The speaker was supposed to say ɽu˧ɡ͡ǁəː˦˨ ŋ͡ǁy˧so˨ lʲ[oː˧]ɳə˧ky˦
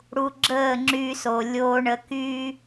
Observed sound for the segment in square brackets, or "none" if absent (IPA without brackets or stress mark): oː˧